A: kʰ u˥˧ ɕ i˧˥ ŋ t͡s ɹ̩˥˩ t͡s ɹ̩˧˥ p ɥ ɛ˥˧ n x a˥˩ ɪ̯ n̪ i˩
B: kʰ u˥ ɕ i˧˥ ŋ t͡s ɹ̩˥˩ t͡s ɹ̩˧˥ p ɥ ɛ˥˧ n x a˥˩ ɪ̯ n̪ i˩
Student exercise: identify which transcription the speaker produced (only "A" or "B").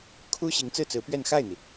B